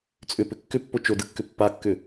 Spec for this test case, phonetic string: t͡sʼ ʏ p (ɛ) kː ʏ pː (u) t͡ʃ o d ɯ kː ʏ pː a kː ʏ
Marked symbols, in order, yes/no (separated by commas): no, no